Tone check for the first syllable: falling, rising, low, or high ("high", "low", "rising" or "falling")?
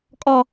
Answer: high